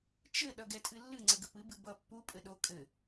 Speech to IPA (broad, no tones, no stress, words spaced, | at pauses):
t͡ʃɘ ɗʌɡɛtʼɨlːɨ ŋ͡ǀəɡəpɨ bɨbʌ pːu pʼɘɗo kʼɘ